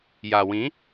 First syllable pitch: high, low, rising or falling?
low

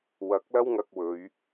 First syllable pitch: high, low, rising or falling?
rising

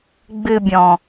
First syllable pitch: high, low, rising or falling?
low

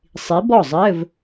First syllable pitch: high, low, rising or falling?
rising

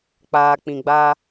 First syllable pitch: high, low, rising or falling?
low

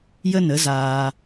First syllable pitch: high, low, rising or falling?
high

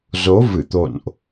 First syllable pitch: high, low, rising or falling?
rising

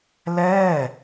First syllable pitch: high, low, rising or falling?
falling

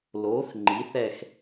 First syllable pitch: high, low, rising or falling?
rising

